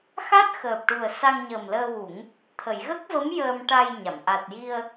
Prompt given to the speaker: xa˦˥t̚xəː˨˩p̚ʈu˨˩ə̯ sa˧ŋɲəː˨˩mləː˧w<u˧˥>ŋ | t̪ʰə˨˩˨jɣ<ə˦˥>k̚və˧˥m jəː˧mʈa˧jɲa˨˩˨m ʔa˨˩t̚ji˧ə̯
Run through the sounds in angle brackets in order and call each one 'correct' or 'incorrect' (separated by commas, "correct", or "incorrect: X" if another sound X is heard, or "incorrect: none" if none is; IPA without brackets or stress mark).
incorrect: u˨˩˦, correct